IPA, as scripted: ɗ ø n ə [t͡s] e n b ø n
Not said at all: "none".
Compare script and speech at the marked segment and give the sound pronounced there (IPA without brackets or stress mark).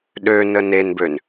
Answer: n